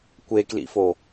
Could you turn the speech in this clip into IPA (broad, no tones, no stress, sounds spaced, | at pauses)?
kʷ e k l ḭ f o